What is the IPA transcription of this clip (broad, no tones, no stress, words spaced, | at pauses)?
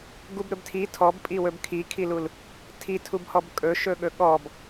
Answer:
ɡubɾɵbtʰi tʰɔbpʼiwɵb kʰikʰilul | tʰitʰubhɔb kʼɵʃɵɠɵ ɠɔb